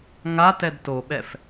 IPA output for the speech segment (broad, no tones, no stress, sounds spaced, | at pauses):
ŋ a t ɛ d t o ɓ ɛ f